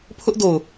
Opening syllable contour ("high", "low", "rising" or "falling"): high